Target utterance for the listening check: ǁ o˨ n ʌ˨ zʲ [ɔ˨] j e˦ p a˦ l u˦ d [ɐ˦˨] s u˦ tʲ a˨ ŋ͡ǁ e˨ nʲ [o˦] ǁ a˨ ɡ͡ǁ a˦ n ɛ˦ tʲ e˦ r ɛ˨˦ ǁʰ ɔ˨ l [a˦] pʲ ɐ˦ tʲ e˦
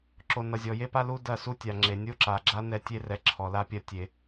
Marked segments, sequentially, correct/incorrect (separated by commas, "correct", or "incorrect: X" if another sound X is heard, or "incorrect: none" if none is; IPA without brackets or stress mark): correct, correct, correct, correct